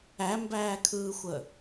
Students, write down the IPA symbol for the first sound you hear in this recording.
æ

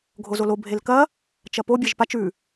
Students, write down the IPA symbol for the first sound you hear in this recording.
ɡʱ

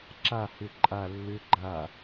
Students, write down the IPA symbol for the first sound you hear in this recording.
ǁ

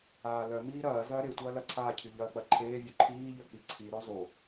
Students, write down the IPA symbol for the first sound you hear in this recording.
aː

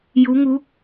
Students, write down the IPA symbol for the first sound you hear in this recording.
j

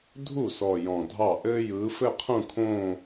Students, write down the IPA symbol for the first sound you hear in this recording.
dʱ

